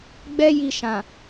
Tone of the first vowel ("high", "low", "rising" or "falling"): high